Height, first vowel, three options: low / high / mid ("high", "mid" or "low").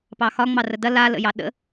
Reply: low